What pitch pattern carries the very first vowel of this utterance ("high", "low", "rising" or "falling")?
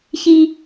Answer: high